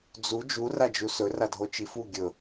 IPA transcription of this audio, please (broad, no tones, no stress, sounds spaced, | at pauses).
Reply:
d͡z u d͡ʒ u r a d͡ʒ u s ɵ r a dʱ o t͡ʃ i f u ɡʲ ɵ